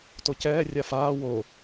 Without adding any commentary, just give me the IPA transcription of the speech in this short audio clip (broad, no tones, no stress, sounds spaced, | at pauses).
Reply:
t o c ɛː rʲ a f aː w o